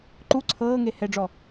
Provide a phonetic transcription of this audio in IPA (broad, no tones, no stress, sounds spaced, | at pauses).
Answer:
ǃ u ǀʰ ɤː ŋ e h ɛ ɖ͡ʐ ɔ